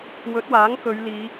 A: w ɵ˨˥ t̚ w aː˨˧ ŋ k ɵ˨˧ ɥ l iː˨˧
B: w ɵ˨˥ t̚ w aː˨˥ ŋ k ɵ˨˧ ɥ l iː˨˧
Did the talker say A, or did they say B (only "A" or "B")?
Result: B